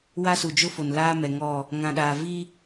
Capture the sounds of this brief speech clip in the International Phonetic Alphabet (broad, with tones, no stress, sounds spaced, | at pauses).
w a˦ s u˨ d͡ʒ ʊ˦ f o˨ n l aː˦ m ɛ˨ ŋ ɔ˦˨ | ŋ ã˨ ɗ aː˨ v i˦